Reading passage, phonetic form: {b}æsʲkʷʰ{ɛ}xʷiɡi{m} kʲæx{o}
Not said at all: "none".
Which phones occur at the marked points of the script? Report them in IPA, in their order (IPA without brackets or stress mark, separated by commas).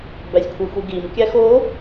b, e, m, o